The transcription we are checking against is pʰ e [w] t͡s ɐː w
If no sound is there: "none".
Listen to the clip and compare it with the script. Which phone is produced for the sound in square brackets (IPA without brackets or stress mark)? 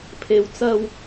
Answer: w